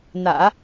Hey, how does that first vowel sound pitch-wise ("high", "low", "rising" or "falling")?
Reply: low